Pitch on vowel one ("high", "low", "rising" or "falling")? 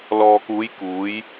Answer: low